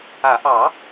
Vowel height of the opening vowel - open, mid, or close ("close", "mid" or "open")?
open